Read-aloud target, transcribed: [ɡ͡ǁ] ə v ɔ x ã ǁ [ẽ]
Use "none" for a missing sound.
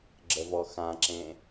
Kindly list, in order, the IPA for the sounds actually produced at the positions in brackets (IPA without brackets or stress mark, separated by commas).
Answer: ɡ͡ǁ, ẽ